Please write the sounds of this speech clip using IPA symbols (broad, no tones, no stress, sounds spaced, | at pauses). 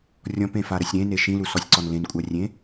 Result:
rʲ ɔ̃ p ẽ f a ɾ ə sʲ ɾ ẽ n e ʃ ĩ l u s ɔ sʲ ǀ ɔ n l ẽ n kʷʼ a rʲ ẽ